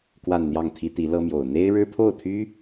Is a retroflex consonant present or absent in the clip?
present